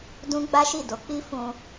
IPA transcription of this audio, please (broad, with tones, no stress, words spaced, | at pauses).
dũ˦ɡ͡ba˦ʃi˦˨ do˨˦k͡pi˦fũ˧